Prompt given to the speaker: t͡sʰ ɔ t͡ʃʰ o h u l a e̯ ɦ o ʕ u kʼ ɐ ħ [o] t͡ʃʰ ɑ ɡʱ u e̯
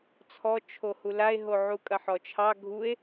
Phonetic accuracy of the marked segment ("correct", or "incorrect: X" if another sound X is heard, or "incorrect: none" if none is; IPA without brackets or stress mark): incorrect: ɔ